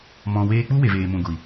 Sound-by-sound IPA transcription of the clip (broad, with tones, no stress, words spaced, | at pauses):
mɔ̃˨weː˧k͡pu˦ we˨veː˨mũ˨ɡʷi˨